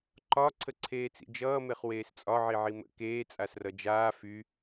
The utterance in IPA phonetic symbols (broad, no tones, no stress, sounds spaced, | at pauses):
ǃ ɒ ǀʰ ə ǀʰ eː t͡s ḭ d͡ʒ ʌː m e χ w eː s t͡sʼ ɒ ʕ i ʕ i m ə̰ k eː t͡sʼ a s r ʌ d͡ʒ aː f y